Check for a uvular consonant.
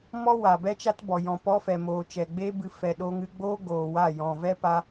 absent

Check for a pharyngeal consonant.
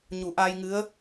absent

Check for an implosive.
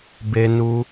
absent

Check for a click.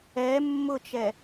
absent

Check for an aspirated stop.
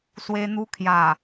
present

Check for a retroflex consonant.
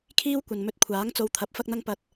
absent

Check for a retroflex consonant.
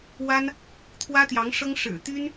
present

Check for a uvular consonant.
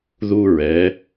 absent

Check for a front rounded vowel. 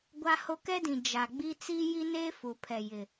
absent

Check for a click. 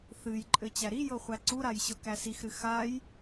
present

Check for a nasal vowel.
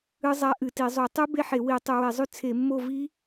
absent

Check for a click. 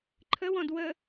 present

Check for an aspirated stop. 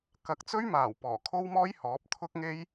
present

